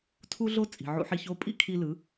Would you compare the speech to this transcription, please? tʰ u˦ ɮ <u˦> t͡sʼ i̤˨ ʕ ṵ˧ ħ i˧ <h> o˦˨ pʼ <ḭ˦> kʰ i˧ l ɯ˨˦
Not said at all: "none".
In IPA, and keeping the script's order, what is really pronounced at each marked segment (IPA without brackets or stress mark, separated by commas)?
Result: o˦, ç, ḭ˦